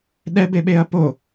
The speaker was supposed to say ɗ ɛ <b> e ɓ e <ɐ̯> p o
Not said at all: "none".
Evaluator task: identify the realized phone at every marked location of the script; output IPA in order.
b, ɐ̯

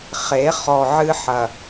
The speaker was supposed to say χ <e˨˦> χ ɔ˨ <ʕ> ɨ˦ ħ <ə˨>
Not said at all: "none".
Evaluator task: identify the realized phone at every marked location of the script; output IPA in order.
e˨˦, ʕ, ɐ˨

